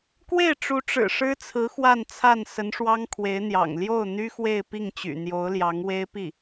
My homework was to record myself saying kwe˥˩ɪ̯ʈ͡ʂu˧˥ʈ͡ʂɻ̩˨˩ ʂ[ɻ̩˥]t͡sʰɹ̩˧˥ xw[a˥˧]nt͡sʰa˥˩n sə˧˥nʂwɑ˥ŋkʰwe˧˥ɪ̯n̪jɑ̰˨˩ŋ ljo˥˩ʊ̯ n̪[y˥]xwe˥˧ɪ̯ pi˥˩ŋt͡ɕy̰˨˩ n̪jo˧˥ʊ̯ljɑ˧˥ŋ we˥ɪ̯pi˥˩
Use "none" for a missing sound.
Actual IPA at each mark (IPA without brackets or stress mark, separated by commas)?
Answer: ɻ̩˥, a˥˧, y˥